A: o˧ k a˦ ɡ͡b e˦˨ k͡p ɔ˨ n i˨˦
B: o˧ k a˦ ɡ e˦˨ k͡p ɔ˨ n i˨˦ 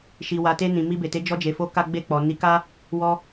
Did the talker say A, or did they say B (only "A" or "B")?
A